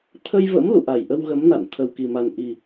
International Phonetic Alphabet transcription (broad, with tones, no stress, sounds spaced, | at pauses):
t̪ʰ ə˧ j v ə̰˧˥ m l ṵ˧˨ ʔ a˧˩ j ʔ ə˧ w ɣ ə˨˦ m n a̰˧˨ n t̪ʰ ə˨˩ w k i˨˩ m a˨˩ n ʔ i˨˩